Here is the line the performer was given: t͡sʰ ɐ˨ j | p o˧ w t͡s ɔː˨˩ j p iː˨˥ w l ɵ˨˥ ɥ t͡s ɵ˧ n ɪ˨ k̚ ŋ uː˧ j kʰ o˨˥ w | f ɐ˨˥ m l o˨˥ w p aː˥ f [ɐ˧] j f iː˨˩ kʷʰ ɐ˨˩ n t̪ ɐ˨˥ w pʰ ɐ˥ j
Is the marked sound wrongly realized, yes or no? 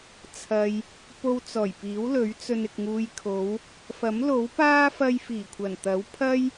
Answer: no